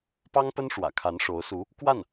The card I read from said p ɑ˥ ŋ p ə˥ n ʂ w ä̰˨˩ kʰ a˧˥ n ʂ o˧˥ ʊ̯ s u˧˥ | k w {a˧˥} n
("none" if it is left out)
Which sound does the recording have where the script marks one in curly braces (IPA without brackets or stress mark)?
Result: a˥˩